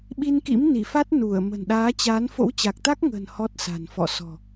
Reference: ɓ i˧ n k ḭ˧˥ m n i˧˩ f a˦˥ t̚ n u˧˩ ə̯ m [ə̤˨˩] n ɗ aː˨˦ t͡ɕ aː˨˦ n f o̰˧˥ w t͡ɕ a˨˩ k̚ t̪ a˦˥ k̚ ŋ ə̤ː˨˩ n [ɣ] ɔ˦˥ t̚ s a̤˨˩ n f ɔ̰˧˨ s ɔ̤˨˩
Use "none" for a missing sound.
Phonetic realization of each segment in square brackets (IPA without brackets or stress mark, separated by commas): ə̤˨˩, h